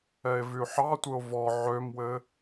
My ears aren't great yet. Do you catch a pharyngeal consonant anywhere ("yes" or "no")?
yes